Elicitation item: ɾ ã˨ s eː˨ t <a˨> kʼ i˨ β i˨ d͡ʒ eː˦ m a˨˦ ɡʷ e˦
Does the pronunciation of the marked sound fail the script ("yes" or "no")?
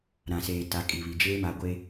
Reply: yes